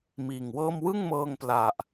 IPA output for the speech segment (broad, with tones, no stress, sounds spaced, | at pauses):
m iː˨˩ ŋ w ɤː˥˩ m w ɯ˥˩ ŋ m ɤː˧ ŋ p l a˨˩ ʔ